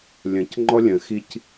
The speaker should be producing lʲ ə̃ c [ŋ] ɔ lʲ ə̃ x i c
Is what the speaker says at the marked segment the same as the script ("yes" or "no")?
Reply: no